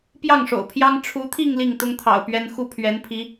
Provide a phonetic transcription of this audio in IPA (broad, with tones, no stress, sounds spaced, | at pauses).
p j ɑ˥˩ ŋ ʂ o̰˨˩ ʊ̯ pʰ j ɑ˥ ŋ ʈ͡ʂʰ u˧˥ t̪ʰ i˥˧ ŋ l i˥˩ ŋ t̪ ʊ˥ ŋ t̪ʰ ɑ̰˨˩ ʊ̯ p ɥ ɛ˥ n x u˥˩ pʰ ɥ ɛ˧˥ n pʰ i˧˥